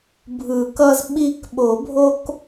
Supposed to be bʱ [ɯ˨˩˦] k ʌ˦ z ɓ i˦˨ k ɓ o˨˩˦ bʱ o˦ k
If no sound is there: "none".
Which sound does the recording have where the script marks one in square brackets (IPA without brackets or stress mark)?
ɯ˨˩˦